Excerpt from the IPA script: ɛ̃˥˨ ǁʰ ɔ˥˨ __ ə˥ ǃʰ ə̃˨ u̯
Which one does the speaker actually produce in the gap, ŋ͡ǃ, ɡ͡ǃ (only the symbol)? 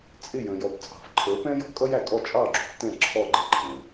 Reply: ɡ͡ǃ